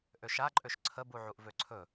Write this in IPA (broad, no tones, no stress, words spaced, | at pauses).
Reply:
ʔøʃaǃʼøʃ ǀʰəbuʕuʔ vøǀʰɵ